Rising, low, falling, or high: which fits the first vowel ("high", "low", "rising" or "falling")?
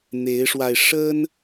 rising